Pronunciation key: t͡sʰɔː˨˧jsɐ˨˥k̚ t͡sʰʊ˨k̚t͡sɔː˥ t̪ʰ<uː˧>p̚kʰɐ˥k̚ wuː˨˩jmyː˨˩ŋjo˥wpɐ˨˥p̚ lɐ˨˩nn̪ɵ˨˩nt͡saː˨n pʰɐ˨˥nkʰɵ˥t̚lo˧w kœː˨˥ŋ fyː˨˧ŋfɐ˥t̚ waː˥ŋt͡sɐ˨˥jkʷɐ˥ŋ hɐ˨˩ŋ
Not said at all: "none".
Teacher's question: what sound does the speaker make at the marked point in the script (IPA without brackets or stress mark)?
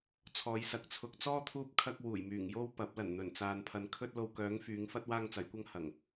uː˥